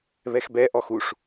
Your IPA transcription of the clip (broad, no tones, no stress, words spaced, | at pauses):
βɛxbɛ ʔɔxuʂ